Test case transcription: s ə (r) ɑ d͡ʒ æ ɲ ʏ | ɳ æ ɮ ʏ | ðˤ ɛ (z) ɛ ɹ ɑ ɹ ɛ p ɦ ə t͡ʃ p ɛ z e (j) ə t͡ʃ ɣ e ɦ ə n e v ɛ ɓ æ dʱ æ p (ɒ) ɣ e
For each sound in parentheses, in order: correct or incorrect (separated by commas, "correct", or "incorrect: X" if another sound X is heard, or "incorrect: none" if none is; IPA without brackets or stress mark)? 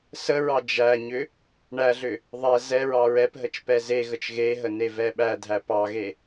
incorrect: ɹ, correct, incorrect: ɣ, incorrect: ɑ